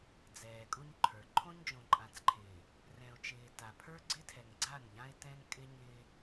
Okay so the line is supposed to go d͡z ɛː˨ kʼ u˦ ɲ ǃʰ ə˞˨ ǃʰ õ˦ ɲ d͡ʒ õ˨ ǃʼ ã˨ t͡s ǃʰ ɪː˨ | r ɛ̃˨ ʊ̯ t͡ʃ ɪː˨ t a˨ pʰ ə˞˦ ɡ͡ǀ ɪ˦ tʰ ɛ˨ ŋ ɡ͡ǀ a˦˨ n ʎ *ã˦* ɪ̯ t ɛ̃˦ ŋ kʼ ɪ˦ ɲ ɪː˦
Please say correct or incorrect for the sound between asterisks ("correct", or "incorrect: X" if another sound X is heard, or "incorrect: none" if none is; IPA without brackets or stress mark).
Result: correct